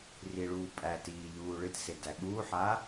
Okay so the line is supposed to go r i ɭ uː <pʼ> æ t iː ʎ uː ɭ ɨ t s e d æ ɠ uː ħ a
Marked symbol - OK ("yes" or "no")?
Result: yes